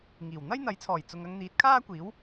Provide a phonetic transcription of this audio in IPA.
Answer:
ŋiː˨˩w n̪ɐ˥jn̪ɐ˨˥jt͡sʰɔː˨˩j t͡sʊ˨ŋɐ˧ŋ n̪iː˨˥t̚kʰaː˥kʷiː˨˥w

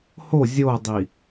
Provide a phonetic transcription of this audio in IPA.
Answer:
ho zʲodˤi

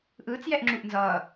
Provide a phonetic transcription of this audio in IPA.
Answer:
ʔɯːt͡sjɛʔŋ͡ǁuʔ nzʌː

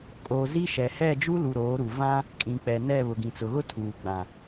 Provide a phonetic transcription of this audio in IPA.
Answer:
kʼo˨ zi˦ʃɛ˨ hɛ˦˨d͡ʒu˦lu˨ ɾoː˨˦ɾu˨ vã˦ | kʼĩ˨k͡pɛ˨nɛ˦˨ βʊ˨ɡĩ˨t͡sʊ˨ɣʊ˦ tʰuː˨ɡ͡bã˨

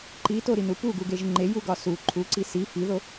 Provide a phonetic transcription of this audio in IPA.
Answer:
ǃitoɾinu puɡuɡeʒ ŋ͡ǃejuɡɒ su ǃʰuǀi si fiðo

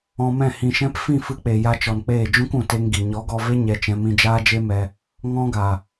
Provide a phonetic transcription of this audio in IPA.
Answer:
ɔ̃˧mɛ̃˦˨ hĩ˨ʃɛ̃˧p fĩ˦˨fɨ˧k͡pe˨ ja˧t͡ʃɔ˨nk͡peː˦˨ d͡ʒũ˦kũ˨te˧ŋ ɡi˨ ɲɔ˨˦ɡɔ˧ve˦ ɲɛ˧t͡ʃɛ̃˧ mĩ˧d͡ʒaː˦d͡ʒe˦mɛ˧ | ŋɔ̃˦ɡa˨

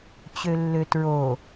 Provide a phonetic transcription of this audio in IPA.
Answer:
t͡ɕølːøtɹo

